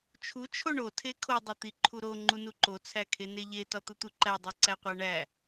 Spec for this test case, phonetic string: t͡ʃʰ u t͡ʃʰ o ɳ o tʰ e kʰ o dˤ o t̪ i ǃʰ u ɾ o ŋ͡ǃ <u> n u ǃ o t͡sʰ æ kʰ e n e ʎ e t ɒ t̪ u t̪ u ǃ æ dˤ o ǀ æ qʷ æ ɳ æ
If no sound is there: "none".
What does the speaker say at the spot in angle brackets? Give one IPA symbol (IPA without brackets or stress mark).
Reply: u